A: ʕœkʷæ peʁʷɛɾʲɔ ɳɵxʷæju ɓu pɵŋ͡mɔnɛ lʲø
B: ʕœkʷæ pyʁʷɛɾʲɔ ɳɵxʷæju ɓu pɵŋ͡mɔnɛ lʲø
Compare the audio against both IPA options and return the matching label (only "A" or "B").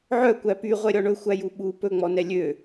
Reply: B